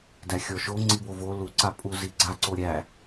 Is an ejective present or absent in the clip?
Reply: present